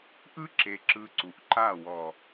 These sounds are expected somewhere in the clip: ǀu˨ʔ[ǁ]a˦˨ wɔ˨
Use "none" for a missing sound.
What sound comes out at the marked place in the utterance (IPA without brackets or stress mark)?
ǃ